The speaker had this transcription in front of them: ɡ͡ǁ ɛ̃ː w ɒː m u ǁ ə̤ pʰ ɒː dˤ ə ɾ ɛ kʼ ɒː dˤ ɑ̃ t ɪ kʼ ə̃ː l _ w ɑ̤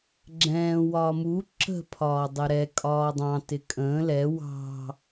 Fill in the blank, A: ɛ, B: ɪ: A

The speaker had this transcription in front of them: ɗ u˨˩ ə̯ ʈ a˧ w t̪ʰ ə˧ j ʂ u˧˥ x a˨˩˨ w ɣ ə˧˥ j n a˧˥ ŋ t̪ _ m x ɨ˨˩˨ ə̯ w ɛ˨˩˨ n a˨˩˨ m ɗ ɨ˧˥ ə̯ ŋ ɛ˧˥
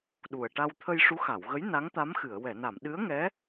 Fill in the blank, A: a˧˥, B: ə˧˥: A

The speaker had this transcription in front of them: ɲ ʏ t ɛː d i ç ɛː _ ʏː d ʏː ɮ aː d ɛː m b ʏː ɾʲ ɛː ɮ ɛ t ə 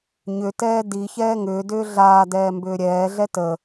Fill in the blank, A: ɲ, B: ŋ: B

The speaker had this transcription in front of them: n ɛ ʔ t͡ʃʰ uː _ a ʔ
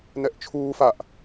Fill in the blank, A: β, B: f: B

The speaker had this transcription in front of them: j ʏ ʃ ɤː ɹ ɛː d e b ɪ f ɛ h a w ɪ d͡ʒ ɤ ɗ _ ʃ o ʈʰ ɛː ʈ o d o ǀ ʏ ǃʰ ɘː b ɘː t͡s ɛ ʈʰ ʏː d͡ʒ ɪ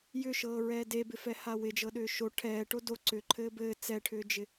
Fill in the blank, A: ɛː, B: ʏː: B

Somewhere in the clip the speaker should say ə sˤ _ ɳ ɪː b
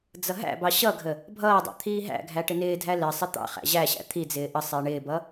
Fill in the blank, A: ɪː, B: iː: A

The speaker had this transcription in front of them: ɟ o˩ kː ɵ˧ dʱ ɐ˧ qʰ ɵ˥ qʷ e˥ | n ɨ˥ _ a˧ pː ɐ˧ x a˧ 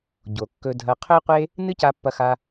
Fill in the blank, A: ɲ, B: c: B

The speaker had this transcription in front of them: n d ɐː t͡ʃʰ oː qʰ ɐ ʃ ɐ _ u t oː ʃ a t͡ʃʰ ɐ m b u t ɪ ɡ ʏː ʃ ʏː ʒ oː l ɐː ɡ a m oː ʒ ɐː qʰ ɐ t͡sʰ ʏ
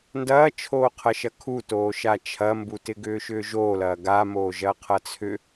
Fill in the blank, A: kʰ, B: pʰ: A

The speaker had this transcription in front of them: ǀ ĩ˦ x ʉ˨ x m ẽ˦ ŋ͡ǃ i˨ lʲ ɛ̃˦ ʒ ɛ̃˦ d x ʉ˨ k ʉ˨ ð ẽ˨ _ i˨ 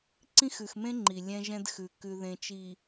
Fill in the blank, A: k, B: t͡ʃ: B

